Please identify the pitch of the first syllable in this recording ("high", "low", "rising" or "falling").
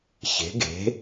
rising